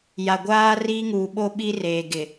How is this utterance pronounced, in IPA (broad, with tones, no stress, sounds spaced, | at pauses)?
j a˨ ɡʷ aː˦ r iː˦ ŋ uː˨ ɓ o˦ ɓ i˦ r eː˨ ɡ ɪ˨